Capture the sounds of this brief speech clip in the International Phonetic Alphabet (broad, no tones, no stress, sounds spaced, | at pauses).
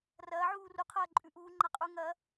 r ɐː ʕ uː r u qʰ ɐː ǃʼ ʉ ʔ uː ŋ͡ǃ a qʼ uː ŋ ɐ